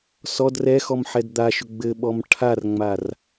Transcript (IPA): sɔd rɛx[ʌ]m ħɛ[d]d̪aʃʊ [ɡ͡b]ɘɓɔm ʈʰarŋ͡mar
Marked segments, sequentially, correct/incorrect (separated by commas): incorrect, correct, correct